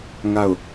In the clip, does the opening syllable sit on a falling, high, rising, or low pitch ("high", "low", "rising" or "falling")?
falling